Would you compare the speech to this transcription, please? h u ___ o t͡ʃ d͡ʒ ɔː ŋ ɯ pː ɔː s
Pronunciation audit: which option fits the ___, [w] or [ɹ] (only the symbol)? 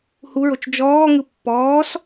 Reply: ɹ